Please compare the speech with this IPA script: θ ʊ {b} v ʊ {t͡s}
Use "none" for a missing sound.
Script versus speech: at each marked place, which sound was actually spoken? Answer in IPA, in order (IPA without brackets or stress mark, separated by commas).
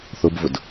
b, d